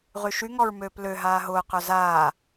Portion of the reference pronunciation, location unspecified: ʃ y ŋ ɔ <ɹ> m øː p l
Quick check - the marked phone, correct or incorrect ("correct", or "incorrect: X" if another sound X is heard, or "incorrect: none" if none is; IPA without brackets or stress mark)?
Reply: correct